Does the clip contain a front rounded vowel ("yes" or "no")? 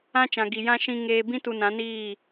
no